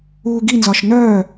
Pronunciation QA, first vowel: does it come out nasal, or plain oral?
oral